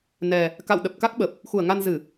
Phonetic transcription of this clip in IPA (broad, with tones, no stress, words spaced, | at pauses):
nɛ˨˩ | ka̰˧˨wɗə˨˩p̚ka˦˥k̚ɓə˨˩p̚ | xu˧˩ə̯ŋa˧n zɨ˧˩˨